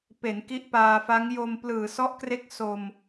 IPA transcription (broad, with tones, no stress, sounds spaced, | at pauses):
p e˩˦ n k i˦˥ ʔ p aː˧ f a˦˥ ŋ j o˧ m p l ɯː˨˩ s ɔ˦˥ ʔ k r e˦˥ k̚ s o˧ m